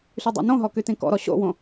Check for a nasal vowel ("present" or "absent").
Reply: present